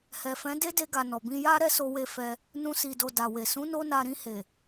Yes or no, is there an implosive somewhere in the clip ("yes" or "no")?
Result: no